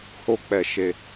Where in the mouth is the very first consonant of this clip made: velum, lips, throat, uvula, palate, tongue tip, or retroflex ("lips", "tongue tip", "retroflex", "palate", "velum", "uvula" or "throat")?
throat